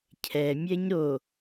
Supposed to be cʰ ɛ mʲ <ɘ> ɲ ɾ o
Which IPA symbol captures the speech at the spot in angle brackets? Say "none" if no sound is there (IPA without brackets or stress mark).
ɛ